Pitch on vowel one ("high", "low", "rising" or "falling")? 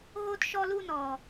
high